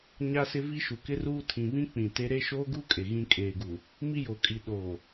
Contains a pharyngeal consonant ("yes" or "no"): no